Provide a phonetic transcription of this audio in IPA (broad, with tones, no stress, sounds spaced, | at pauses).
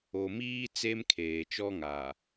o˨ m iː˦ t͡s e˦ m kʰ eː˨ t͡ʃ ɔ˦ ŋ a˨